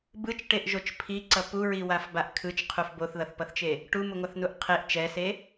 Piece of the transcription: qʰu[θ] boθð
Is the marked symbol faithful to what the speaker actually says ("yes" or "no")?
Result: no